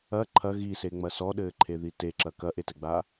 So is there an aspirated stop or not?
yes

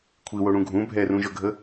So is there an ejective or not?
no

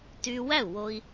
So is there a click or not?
no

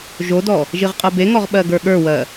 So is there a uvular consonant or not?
yes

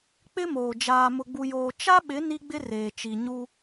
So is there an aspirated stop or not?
no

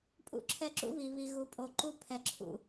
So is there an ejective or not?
yes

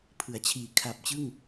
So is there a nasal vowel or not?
no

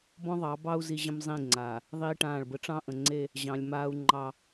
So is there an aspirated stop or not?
no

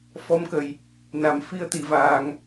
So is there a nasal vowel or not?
no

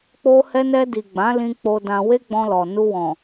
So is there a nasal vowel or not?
yes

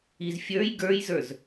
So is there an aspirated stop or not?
no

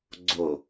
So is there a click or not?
yes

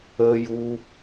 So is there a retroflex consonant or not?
no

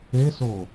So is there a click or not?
no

